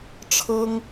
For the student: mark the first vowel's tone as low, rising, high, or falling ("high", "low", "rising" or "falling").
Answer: high